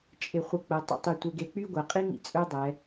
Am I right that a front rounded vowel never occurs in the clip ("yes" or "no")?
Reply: no